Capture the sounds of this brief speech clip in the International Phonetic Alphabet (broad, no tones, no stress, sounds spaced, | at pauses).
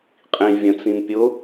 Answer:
qʼ ĩ vʲ ə̃ t͡s ĩ m pʲ ʊ